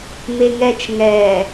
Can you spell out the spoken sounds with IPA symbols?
m e ŋ ɛ t͡ʃ ŋ ɛː

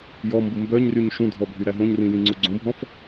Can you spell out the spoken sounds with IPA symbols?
j ɔ m b u m b œ ɲ r y ɲ ʃ ũ dʱ ɔ bʱ y ɾ æ ɦ õ ɲ r ĩ j ĩ ŋ͡ǀ u ɡ͡ǀ õ bʱ ɔ̃ f

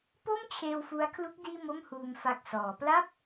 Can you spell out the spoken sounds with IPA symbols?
p o˥˩ m t͡ɕʰ eː˧ w f u˦˥ a̯ kʰ l u˦˥ k̚ d iː˥˩ m o˥˩ m h uː˧ m f a˨˩ k̚ s ɔː˩˦ p l a˥˩ p̚

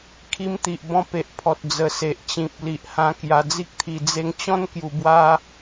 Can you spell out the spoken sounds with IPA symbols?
kʰ i˧ m t̪ i˨ ʔ b ɔ̃˧ p e˨ ʔ pʰ ɔ˨ t̚ d͡z ə˨˩ s e˨ ʔ t͡ɕ ĩ˨ p̚ l i˨ ʔ h ã˧ k j a˧ d͡z i˦ k̚ t̪ʰ i˧ d͡z e˧ ŋ t͡ɕ ɔ̃˦ n k j u˧ b w a˦

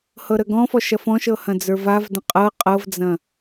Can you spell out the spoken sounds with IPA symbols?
h ɤ ɾ ə ɡ ɔ̃ f ɔ ʃ ɐ f ɔ̃ ʃ ɤ h ɐ̃ d͡z ə˞ v a v d ə̃ qʼ ɤ qʼ ɤ v d͡z ɐ̃

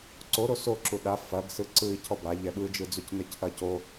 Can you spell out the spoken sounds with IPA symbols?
ǀ o ɾ o s o ǁ u ɗ a f ɐ ɡ s ɯ ǀ ɯ i̯ cʰ ɔ b a ʎ ɛ ɓ ɯ d͡ʒ ɯ d͡z u c n ɘ c ʔ ɐ c o

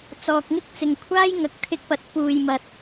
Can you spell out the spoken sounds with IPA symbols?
t͡s ɔː˨ k̚ ŋ ɪ˥ k̚ t͡s ɪ˨ ŋ kʷʰ aː˥ j ŋ ɐ˨ k̚ t̪ʰ ɪ˧ k̚ p ɐ˨˥ t̚ p uː˨ j m ɐ˨ t̚

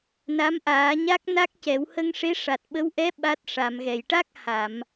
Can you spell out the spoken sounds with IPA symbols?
n a˧˥ m ʔ aː˨˩˦ ɲ a˦˥ k̚ n a˦˥ k̚ c ɛ˨˩˦ w h ə˧ ŋ ʂ e˧˥ ʂ a˨˩ t̚ ɓ ə˧˥ w ʔ ɛ˧˥ ɓ a˦˥ t̚ ʂ a˨˩˨ m ɣ ɛ˨˩˨ j ʈ a˦˥ k̚ h a˨˩˨ m

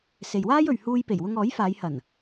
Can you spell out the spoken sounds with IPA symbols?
s e˨ j w aː˥ j ɵ˨ ɥ h uː˧ j p e˨˩ j w ʊ˧ ŋ ɔː˨˥ j f aː˨˧ j h ɐ˨˩ n

